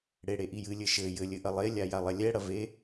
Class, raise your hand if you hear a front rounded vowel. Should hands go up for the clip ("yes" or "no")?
no